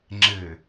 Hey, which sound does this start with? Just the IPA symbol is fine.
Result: ŋ͡ǁ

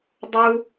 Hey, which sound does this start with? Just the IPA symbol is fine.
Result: dˤ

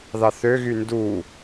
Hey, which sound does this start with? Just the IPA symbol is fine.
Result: ð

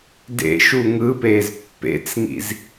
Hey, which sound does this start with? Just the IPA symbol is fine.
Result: d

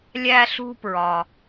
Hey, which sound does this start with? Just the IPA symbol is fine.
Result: lʲ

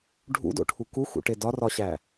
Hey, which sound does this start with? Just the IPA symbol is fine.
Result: ɖʱ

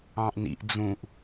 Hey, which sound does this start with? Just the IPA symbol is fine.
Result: ɑ̃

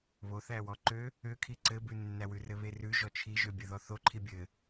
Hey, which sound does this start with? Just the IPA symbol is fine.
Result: β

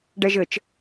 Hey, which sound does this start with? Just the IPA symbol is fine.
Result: ɖ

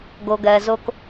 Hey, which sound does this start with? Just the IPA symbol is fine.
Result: ɡ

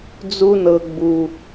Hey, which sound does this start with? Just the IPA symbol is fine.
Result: d͡z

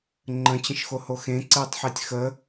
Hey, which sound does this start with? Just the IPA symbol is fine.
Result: ŋ͡ǃ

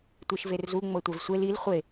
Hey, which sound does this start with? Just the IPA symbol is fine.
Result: tʷ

